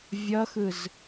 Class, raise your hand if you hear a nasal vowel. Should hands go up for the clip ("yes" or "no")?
no